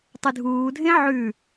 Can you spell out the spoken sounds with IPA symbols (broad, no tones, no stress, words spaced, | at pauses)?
tˤɨdʱuː dʱẽʕʉ